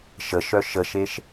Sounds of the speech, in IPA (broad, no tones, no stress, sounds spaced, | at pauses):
ʃ ə ʃ œ ʃ ə ʃ e ʃ